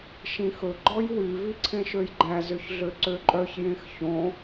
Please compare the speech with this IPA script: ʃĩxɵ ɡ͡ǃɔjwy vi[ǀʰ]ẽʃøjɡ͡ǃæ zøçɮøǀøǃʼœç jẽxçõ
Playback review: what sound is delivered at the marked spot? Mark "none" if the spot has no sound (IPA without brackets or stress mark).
ǀʰ